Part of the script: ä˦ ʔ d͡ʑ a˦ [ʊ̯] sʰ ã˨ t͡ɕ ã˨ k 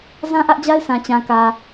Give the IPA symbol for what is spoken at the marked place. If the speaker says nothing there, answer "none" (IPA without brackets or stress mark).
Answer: ɪ̯